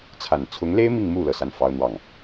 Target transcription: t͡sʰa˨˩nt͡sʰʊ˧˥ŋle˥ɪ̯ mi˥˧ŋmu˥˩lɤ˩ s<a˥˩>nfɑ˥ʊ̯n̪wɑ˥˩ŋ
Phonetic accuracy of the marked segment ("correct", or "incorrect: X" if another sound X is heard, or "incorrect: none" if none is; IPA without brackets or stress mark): correct